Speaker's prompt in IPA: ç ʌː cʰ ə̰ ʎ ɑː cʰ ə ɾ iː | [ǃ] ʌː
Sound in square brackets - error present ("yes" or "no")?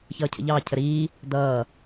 yes